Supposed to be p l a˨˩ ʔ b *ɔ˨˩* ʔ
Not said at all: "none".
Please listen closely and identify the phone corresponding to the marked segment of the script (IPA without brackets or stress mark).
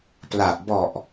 ɔ˨˩